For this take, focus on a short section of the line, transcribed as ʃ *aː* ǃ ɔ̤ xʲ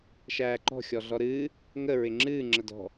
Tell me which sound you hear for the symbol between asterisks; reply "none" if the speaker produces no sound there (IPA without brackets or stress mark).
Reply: æː